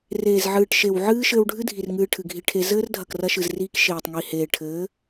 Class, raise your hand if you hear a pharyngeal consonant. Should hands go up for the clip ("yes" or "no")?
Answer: yes